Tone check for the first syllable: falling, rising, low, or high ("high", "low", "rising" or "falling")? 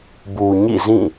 low